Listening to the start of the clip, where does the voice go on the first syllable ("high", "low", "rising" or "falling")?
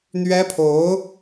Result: high